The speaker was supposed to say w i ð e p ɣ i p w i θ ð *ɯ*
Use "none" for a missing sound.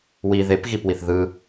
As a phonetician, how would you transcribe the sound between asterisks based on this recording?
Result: ɯ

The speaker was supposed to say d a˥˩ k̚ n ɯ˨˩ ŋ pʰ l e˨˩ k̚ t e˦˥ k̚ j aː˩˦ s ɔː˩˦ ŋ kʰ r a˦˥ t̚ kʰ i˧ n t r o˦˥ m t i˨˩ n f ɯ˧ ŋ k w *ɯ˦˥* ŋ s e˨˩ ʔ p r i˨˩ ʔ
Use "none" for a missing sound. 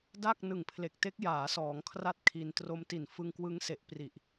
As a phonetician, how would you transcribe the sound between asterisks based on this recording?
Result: ɯ˦˥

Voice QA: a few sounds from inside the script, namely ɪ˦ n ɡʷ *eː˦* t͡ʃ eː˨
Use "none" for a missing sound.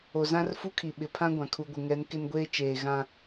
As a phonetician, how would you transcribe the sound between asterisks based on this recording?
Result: eː˦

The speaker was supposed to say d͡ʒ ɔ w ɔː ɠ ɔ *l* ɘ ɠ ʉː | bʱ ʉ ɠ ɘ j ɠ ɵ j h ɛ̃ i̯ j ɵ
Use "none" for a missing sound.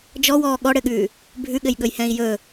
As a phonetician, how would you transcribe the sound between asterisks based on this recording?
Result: ɽ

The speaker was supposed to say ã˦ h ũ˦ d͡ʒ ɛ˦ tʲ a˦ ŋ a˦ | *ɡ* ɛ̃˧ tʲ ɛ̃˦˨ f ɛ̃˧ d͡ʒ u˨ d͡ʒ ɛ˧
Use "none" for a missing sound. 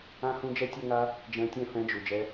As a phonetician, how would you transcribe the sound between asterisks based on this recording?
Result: d͡ʒ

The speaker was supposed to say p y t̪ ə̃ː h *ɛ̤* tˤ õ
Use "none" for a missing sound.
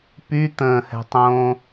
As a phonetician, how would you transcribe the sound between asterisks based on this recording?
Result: ɛ̤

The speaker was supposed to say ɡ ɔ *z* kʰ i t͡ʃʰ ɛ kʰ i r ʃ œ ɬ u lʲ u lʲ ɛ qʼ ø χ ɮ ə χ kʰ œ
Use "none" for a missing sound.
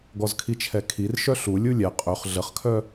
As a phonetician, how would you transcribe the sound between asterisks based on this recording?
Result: z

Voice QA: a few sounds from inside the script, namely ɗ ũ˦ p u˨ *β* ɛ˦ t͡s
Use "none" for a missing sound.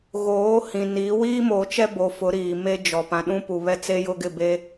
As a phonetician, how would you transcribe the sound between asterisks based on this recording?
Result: β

